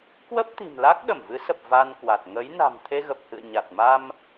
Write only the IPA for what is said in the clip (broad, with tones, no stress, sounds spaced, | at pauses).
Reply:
k w ə˦˥ p̚ t̪ i̤˨˩ m l a˦˥ k̚ ɗ ə˧˩ m v ɨ˨˦ s ə˨˩ p̚ v a˧ n k w a˨˩ t̚ ŋ ə˨˦ j n a̤˨˩ m t̪ʰ e˧ ɣ ə˨˩ p̚ h ɨ̰˧˨ ə̯ ɲ a˨˩ t̚ m a˧ m